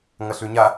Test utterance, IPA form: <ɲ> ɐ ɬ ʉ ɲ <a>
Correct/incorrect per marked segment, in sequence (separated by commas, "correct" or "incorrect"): incorrect, correct